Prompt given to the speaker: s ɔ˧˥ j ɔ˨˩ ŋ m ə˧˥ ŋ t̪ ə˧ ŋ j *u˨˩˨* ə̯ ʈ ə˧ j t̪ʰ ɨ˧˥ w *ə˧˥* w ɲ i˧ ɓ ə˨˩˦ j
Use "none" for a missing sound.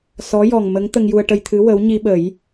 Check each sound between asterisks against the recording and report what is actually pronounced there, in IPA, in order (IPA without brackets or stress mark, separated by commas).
u˧, ə˧˥